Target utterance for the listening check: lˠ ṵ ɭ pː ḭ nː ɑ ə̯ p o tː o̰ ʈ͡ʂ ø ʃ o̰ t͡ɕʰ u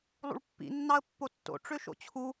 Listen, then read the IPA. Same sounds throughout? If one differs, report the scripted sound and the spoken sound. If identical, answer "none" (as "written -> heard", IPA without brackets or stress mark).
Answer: p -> pː